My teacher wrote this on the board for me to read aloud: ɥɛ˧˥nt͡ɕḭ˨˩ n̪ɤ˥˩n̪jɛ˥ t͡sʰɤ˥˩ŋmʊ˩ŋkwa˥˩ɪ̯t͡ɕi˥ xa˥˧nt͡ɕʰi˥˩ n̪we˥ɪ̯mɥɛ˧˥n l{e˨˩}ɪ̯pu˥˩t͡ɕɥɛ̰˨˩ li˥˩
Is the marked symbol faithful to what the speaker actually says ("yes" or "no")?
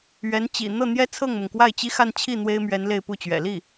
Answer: no